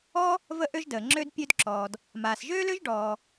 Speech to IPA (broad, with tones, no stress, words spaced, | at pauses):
ɔ˥ | və˥ʔø˥ʒdəː˩ŋ͡ǁø˥d pʲø˥dǁɔː˩d | maː˩sʒøː˥lø˥ʒ ɖɔː˩